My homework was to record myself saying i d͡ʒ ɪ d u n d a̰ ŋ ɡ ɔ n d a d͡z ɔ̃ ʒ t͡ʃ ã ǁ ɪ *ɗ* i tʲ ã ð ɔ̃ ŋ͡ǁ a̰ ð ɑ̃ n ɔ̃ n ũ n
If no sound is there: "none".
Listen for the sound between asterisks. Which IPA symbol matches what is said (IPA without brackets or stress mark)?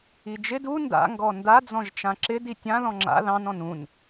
d